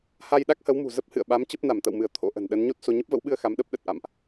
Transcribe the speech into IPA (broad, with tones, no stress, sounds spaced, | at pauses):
h a˧ j ɗ a˦˥ k̚ h ə˨˦ w m ṳ˨˩ z ə˦˥ p̚ h ɨ̰˧˨ ə̯ ɓ a˨˦ m t͡ɕ ə˦˥ p̚ n a˧˩ m t̪ ə̰˧˨ w m ɨ˧˩ ə̯ t̪ʰ o̰˧˥ ʔ ə̤˨˩ n ɗ ə˨˦ n ɲ o˦˥ t̚ s o˧ ɲ ə˦˥ p̚ v ə̰˧˥ w ɓ ɨ˧ ə̯ x a˨˦ m ɗ ə˦˥ p̚ ɗ ə˨˩ t̚ ʔ a̰˧˨ m ʔ